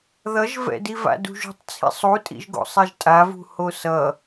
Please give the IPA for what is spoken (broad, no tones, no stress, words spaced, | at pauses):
ðʌʒvɛ̰di va̰dṳʒṳtˤ t͡sʰḭsˤutʼḭʒ ɡo̰sˤɛʒtʼavṳ hosʌ